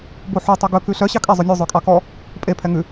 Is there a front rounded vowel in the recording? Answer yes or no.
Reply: yes